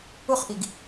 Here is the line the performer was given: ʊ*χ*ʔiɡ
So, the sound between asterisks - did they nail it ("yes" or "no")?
yes